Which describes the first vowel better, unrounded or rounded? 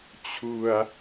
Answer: rounded